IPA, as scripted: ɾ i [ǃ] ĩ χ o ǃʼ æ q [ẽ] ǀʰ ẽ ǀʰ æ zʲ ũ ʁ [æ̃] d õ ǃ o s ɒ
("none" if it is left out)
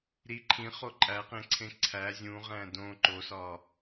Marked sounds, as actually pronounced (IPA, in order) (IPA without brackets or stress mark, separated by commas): ǃʰ, ẽ, æ̃